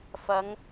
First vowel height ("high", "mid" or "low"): low